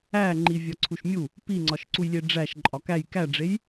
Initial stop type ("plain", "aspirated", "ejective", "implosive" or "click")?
click